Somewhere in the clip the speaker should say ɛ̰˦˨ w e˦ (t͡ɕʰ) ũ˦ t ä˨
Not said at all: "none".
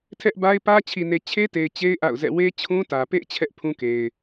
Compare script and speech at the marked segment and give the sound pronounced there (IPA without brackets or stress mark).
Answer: t͡ɕʰ